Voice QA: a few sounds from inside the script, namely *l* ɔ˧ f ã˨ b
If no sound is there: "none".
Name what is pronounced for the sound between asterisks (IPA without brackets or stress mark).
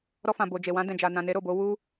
ɾ